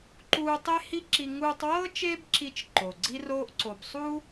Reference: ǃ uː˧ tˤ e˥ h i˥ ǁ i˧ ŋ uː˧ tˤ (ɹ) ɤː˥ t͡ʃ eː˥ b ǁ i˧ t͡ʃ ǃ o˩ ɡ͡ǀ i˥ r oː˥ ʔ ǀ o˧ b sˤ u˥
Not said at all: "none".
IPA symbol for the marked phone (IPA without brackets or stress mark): w